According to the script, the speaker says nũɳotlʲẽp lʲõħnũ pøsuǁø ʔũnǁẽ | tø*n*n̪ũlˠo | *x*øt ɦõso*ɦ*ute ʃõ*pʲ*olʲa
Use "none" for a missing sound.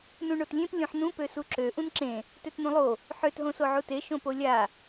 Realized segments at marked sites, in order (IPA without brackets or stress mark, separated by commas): t, ħ, ʕ, p